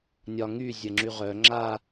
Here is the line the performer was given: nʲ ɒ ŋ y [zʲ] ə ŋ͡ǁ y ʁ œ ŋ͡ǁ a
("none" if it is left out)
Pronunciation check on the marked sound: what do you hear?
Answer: zʲ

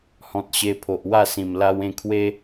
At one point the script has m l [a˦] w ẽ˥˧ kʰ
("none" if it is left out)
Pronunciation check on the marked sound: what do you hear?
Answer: a˧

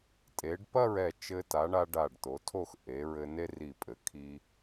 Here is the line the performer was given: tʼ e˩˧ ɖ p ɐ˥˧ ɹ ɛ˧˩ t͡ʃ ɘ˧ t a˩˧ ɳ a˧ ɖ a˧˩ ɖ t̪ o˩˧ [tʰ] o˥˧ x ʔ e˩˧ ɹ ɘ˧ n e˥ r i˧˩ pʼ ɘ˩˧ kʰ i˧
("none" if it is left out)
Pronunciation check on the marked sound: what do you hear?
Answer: tʰ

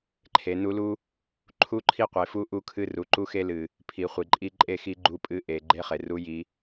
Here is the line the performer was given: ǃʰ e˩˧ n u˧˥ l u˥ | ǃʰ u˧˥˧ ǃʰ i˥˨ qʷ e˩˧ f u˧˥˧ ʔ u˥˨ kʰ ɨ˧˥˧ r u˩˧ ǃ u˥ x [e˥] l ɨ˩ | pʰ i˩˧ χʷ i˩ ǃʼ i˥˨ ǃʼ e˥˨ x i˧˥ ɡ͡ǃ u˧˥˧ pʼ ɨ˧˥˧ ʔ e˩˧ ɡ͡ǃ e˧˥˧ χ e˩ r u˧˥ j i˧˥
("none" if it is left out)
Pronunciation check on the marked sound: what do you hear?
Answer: e˥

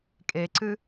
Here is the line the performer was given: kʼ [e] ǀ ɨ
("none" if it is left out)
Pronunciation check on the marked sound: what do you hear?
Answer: e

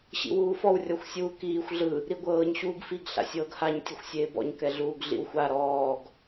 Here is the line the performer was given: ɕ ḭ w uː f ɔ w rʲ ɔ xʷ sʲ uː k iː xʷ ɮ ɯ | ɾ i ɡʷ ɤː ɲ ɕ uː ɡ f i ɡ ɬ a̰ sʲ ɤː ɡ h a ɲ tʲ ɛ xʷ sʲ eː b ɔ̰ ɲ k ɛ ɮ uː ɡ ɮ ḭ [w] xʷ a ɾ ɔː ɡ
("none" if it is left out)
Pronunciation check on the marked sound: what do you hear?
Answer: w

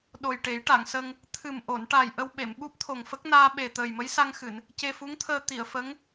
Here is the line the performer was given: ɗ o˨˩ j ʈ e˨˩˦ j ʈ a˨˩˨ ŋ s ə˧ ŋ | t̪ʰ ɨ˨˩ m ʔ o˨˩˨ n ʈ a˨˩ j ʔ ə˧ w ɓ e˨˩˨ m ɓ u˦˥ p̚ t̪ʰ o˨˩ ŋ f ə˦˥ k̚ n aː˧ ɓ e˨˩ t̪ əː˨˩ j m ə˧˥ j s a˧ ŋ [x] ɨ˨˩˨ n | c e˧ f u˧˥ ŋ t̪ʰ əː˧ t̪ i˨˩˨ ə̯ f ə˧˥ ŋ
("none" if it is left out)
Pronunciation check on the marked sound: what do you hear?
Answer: x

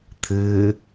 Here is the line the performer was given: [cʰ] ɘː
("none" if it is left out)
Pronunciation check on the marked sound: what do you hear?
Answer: t̪ʰ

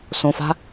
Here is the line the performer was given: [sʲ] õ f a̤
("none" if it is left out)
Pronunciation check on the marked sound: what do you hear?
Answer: s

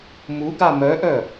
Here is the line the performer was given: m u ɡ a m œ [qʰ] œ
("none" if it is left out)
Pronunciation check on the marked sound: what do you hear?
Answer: ʔ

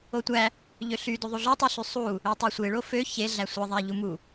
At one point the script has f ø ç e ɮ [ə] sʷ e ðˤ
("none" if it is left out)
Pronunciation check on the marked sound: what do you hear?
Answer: æ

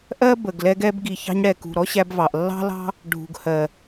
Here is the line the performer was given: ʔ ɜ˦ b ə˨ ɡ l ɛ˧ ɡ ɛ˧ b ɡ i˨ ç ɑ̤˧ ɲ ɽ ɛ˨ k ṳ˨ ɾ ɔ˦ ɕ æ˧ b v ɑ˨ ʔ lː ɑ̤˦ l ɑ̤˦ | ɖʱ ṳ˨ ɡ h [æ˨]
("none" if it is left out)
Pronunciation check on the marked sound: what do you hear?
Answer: ɜ˨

